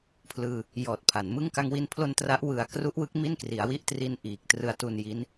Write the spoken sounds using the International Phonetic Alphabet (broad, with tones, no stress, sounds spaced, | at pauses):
pʰ l ɯː˧ | j ɔː˨˩ t̚ pʰ a˩˦ n m ɯ˥˩ ŋ k a˧ ŋ w i˧ n pʰ l o˧ n t r a˦˥ ʔ w ɯ˧ a̯ k r u˦˥ ʔ w ɯ˦˥ k̚ m i˥˩ n k r i˩˦ a̯ w i˥˩ ʔ t r i˧ n ʔ iː˨˩ k̚ t r ɯ˧ a̯ t u˧ n j i˦˥ n